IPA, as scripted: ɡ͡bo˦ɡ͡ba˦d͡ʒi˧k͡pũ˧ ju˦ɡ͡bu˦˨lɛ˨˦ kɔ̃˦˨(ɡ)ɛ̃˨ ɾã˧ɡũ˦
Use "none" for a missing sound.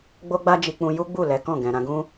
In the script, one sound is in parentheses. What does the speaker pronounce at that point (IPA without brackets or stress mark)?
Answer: ɡ